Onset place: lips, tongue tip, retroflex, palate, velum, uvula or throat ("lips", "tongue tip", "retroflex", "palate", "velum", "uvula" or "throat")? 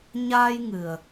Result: palate